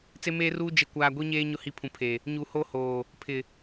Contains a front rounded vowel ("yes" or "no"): no